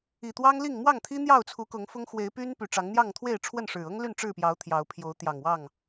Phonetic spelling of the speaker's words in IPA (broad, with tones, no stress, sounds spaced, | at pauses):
i˨˩ t̪ w ɑ˦ ŋ l i˥˨ ŋ m w ɑ˥˨ ŋ t̪ʰ i˦ n̪ j ɑ˥˨ ʊ̯ t͡sʰ u˨˦ k ʊ˨˦ ŋ f ʊ˦ ŋ x w e˨˦ ɪ̯ p y˦ n p y˨˩ ʈ͡ʂ ɑ˨˦ ŋ n̪ j ɑ˥˨ ŋ t̪ʰ w e˥˨ ɪ̯ ʈ͡ʂʰ w ə˥˨ n ʂ ɻ̩˨˩ ɤ˦ ŋ l y˥˨ n ʈ͡ʂ ɻ̩˥˨ p j ɑ˨˦ ʊ̯ t̪ʰ j ɑ˨˦ ʊ̯ pʰ j o˨˦ ʊ̯ t̪ j ɑ˨˩ ŋ w ɑ˥˨ ŋ